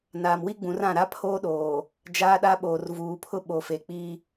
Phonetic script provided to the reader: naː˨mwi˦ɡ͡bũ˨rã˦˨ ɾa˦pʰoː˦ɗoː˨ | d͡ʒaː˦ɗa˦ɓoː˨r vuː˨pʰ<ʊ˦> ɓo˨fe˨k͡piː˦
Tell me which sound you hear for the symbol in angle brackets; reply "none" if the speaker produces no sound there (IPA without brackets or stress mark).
ʊ˦